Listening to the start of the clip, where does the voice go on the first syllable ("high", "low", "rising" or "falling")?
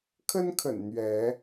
high